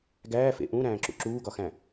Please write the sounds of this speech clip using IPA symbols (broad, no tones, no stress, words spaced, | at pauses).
ɡæːfḛ ʔũɾæ̃ːǁṵ ǁuːɡɒxæ̃